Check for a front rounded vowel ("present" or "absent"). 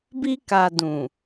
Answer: absent